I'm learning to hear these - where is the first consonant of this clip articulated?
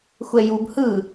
velum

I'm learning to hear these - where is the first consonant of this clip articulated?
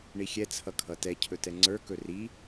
retroflex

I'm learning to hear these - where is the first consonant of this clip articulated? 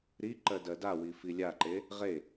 tongue tip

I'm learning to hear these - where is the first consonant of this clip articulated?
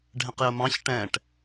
retroflex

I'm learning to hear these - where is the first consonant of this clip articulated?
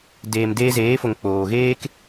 tongue tip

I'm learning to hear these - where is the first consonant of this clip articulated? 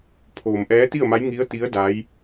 lips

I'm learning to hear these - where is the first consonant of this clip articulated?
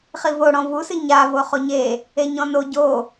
uvula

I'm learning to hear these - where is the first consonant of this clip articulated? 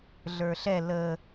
tongue tip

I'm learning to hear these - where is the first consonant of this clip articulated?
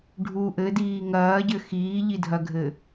retroflex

